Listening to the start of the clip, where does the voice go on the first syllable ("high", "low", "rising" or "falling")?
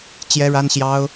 high